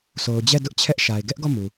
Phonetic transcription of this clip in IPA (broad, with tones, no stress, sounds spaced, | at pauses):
sʰ o˨ ʊ̯ d͡ʑ ɛ˦˨ d ʊ˦ ʔ t͡ɕʰ ɛ˦ ʔ ʃ a˨ ɪ̯ ɡ ɛ˦ ʔ ɡ ɔ˦˨ m u˨